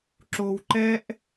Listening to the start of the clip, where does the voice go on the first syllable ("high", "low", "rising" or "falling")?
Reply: low